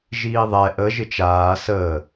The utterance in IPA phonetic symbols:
ʒiːðˤɛ ʔə ʒɪt͡ʃaː səː

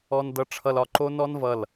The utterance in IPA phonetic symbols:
ɔ˧ndʌ˧ʈ͡ʂʰʌ˧l ɒ˧ǃo˥ nɔ˥nvʌ˧˩l

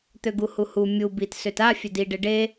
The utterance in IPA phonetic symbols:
t̪øɡuhuhu mʲu bit søta fʲødi ɖeɖe

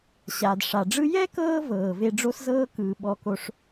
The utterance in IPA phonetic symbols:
ɕaː˨dʂa˨ɖ͡ʐɯ˥ jɛ˥kɤː˦vɤː˩ ve˦ɖ͡ʐo˥szɤː˥kɯː˨ ɓɔ˦ko˦ʂ

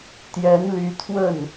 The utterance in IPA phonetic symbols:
t̪jɛ˧˥nly˧˥ t̪ʰwə˥˩n

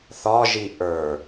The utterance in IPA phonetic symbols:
θɒʒi ʔə˞

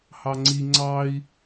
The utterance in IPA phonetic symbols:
hɑŋ͡ǀi ŋ͡ǀɑi̯

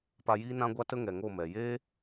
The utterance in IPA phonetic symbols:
pa˧jiː˦ nã˦ɡʷa˦tə˦ ŋɛ˨ŋo˦˨mɛ˨ jeː˦

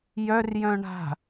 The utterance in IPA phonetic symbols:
jœr jœ̃ɳa̤

